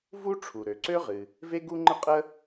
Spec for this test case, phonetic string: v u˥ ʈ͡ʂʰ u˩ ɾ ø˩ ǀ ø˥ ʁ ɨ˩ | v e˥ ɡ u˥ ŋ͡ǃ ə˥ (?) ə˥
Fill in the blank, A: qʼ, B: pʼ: A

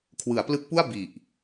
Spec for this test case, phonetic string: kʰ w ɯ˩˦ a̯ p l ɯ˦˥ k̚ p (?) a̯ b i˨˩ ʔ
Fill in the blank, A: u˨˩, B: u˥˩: B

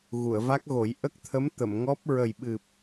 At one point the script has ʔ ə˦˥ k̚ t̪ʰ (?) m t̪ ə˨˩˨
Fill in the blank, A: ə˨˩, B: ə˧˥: B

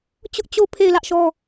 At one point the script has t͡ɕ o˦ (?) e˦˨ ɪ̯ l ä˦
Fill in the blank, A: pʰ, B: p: A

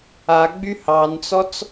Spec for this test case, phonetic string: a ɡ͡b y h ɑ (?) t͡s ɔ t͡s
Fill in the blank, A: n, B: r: A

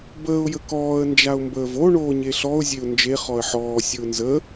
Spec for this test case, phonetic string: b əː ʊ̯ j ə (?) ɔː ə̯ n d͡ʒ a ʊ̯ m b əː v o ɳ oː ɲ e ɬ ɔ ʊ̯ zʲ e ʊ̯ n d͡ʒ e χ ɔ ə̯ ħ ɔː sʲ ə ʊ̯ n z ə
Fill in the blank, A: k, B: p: A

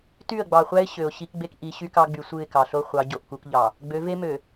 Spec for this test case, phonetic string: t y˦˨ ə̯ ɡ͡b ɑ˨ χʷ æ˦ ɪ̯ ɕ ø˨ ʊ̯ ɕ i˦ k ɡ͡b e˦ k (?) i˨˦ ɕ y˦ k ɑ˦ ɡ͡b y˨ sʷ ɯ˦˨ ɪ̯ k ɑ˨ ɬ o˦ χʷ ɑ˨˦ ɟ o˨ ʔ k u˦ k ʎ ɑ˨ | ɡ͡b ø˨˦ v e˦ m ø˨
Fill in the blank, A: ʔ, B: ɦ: A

